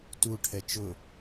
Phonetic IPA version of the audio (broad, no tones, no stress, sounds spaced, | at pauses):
t u ʈʰ ɛ t͡ʃ ʊ